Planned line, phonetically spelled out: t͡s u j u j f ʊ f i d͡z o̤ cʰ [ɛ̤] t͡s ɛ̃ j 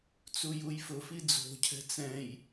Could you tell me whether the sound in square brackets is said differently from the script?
no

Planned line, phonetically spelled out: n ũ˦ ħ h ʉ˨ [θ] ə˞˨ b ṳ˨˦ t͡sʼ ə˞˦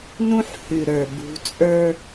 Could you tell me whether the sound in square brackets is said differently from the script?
yes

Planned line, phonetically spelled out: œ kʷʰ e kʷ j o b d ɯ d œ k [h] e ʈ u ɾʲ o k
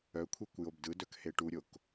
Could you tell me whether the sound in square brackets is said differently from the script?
no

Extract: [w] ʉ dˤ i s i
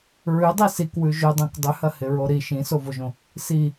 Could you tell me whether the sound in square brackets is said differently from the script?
yes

